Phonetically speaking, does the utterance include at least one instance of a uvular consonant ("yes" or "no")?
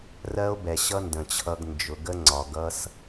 no